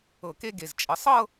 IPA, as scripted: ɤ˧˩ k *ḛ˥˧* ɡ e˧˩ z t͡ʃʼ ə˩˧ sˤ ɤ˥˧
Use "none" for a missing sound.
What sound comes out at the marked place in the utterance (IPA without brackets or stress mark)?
e˥˧